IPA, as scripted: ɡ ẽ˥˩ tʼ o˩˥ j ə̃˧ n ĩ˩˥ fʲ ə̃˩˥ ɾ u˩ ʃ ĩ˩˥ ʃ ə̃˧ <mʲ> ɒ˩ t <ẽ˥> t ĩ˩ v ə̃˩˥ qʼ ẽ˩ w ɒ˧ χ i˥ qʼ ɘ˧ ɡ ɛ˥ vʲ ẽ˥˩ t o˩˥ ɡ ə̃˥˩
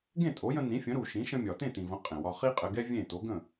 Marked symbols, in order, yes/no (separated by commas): yes, no